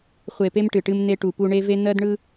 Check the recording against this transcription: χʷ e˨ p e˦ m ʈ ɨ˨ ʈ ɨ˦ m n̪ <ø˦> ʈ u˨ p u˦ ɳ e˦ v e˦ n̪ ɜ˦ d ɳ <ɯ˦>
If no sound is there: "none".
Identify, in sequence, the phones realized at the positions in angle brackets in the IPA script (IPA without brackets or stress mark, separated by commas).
e˦, ɯ˦